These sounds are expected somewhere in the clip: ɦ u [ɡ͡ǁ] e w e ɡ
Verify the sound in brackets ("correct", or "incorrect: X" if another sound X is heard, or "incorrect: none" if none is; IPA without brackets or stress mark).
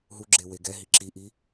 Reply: correct